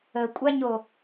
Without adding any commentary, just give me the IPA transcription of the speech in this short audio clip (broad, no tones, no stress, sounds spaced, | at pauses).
ə kʷʼ a ɲ o